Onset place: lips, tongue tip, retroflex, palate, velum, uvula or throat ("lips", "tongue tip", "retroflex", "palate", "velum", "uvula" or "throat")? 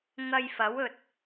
velum